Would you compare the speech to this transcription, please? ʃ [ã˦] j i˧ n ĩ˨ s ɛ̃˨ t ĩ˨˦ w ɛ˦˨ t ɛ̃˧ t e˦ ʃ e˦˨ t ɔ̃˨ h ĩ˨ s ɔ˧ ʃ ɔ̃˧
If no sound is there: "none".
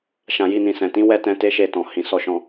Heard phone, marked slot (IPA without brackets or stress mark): ã˨